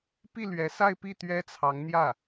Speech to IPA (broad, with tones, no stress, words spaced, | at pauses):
pi˥˩lɥɛ˧˥sa˥˧ɪ̯ pi˥˩t̪ɥɛ˥t͡sʰɑ˧˥ŋn̪jä˥˩